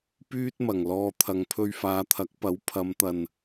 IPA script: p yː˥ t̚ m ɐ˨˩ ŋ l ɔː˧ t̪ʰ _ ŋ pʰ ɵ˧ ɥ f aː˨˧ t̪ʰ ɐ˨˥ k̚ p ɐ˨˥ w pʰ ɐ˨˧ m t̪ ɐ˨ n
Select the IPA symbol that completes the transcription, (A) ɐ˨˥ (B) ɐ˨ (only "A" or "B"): B